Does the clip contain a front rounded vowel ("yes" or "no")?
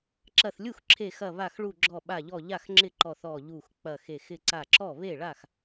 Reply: no